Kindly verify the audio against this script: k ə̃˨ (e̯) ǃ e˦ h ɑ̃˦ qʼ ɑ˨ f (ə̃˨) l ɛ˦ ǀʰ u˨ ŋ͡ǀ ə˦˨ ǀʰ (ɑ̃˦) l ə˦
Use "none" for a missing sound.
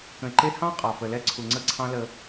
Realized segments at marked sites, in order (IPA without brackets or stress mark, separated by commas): e̯, ə˨, ɑ̃˦